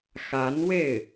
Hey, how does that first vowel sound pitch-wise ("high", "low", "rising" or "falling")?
rising